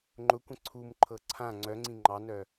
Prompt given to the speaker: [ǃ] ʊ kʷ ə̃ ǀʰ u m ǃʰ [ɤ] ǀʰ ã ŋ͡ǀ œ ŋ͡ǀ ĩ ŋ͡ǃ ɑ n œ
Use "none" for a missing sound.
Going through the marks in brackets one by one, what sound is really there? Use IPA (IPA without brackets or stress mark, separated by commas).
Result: ŋ͡ǃ, ɤ